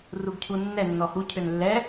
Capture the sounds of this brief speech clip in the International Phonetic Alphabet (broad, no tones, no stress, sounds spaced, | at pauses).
r u ɡ cʰ u nː ɛ nː ɔ h u cʰ ø n lː ɛ